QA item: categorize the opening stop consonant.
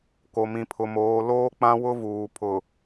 plain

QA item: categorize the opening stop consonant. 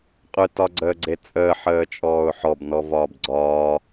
ejective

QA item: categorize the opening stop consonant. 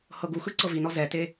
plain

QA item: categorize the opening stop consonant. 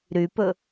plain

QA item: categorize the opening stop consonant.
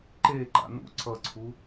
click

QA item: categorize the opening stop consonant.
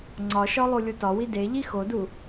click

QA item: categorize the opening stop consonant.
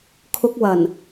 aspirated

